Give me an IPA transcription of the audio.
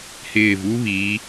h ɪː˧˩ v u˥ β i˩˧

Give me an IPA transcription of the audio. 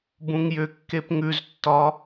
b ũ ŋ j ʏ kː e p ŋ ʉ z tː ɒ

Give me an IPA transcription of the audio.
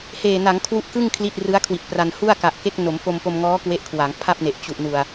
h eː˨˩ n a˩˦ ŋ kʰ w u˦˥ ʔ k ɯ˥˩ ŋ kʰ l i˥˩ t̚ r ɯ˦˥ a̯ kʰ w i˨˩ t̚ p r a˧ n h u˥˩ a̯ k a˨˩ ʔ k e˦˥ k̚ n o˩˦ m f o˧ m p o˧ m ŋ ɔː˦˥ k w e˦˥ ʔ kʰ w a˩˦ ŋ pʰ a˥˩ p̚ n e˨˩ ʔ t͡ɕ u˨˩ ʔ n u˨˩ a̯

